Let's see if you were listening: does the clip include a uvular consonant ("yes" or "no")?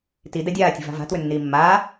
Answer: no